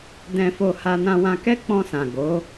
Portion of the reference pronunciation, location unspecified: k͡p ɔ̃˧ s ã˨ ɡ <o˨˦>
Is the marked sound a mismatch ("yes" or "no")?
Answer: no